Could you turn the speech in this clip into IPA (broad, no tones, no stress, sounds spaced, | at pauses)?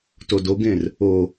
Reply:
t o d o ɡ ẽ r | o